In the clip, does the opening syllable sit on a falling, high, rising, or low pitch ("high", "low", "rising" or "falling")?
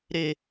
high